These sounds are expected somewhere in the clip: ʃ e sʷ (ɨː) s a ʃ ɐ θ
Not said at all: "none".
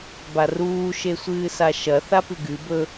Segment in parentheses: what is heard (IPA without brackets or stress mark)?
ɨː